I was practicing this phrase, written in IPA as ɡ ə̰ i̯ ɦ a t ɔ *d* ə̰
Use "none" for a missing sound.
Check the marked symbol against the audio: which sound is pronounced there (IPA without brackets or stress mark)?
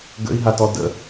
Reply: d